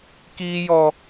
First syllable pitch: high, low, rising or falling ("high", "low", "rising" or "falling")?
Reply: high